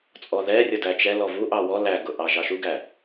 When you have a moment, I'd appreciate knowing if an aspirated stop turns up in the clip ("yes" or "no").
no